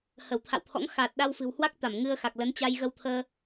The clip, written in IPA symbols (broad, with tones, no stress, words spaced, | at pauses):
hə˧˩wt̪ʰa̰˧˨wt̪ʰɔ̰˧˥ŋ xa˨˩t̚ ɗa˧wfɨ̤˨˩whwa˦˥k̚t̪a˧˩m ŋɨ˧ə̯xa˨˩k̚lə˨˦n t͡ɕa˧jɣə˧wt̪ʰəː˧